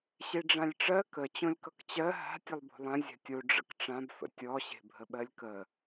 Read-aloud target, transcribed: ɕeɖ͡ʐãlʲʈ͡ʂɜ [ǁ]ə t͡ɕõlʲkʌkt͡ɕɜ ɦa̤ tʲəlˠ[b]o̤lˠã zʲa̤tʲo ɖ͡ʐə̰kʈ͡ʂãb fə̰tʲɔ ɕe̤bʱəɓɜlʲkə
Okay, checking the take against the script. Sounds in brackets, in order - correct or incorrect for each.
incorrect, correct

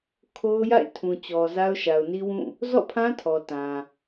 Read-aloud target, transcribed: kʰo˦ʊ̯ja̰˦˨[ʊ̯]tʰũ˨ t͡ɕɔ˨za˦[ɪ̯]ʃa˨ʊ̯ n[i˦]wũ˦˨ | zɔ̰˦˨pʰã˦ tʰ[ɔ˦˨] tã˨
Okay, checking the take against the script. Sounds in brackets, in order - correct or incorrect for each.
incorrect, incorrect, correct, incorrect

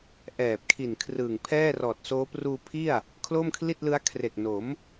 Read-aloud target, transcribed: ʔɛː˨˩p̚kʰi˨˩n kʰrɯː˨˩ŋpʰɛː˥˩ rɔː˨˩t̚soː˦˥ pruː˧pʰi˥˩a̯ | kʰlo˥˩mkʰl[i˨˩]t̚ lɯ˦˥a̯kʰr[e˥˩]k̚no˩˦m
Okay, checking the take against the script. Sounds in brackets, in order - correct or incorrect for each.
incorrect, incorrect

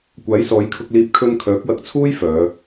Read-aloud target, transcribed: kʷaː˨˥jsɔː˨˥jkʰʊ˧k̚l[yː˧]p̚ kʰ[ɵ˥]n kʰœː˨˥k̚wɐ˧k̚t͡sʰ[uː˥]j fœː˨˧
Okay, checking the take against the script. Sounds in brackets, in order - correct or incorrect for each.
incorrect, correct, correct

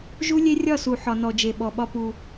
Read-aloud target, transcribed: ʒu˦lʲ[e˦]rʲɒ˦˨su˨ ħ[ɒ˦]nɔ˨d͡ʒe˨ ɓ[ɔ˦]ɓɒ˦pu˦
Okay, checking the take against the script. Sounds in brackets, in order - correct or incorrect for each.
correct, incorrect, incorrect

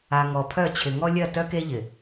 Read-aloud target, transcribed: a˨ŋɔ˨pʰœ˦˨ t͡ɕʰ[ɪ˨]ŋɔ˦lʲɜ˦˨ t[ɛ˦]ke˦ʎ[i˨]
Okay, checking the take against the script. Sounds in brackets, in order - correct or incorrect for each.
correct, incorrect, incorrect

